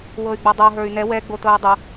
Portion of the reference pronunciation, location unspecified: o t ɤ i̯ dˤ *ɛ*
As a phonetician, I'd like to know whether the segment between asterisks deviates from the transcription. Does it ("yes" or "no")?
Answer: yes